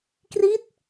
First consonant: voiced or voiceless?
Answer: voiceless